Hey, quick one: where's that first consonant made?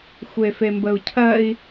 velum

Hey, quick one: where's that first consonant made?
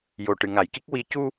palate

